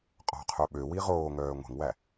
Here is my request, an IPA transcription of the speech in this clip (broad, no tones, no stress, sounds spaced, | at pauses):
qʼ ɔ̤ qʰ œ ɓ ø w i ʁ oː ŋ œː ŋʷ ɛ̤ ŋ w æ